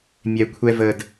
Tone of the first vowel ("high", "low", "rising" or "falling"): low